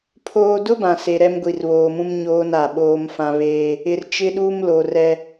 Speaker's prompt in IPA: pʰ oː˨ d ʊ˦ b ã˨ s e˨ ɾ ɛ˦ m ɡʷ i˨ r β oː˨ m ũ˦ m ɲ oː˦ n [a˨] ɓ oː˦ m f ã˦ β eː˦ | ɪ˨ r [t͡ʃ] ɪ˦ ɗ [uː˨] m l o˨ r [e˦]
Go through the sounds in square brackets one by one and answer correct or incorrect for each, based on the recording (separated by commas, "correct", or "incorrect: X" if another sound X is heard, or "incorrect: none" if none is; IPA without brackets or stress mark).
correct, correct, incorrect: uː˦, incorrect: ɛ˦